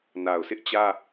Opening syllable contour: low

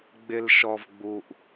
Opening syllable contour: low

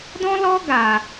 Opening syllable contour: high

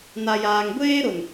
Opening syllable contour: low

